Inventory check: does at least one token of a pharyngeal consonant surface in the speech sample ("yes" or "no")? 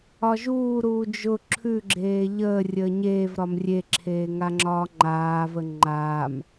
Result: no